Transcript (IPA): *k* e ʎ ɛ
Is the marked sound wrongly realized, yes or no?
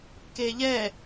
no